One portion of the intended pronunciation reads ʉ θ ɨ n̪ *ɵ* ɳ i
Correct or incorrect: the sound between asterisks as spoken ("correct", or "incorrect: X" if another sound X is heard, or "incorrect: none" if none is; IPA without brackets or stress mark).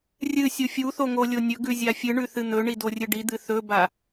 correct